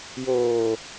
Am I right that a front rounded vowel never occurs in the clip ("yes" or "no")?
yes